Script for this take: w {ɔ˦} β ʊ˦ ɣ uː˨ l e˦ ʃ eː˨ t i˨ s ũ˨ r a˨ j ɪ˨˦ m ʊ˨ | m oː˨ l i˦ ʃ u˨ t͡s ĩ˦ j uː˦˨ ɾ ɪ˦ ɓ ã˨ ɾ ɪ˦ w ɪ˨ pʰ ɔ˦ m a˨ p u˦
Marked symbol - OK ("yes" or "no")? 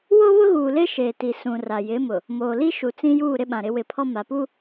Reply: no